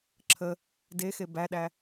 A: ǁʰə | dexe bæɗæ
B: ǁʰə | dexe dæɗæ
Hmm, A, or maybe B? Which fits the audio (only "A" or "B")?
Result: A